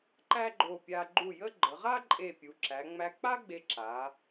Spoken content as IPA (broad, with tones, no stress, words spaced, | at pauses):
ǃæ˥ɡ͡ǃo˧˩pʲa˧ ɡ͡ǃu˧˩ jə˥ ɡ͡ǃə˩˧ʁa˥ǃʼe˧˩ pʲu˩˧ǁæ˩˧ŋ͡mæ˧ k͡pa˥ ɡ͡be˧ ǁa˩˧